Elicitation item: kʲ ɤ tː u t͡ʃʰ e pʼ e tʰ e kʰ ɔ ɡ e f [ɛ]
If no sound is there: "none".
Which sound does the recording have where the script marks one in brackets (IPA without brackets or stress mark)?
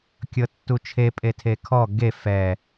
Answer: ɛ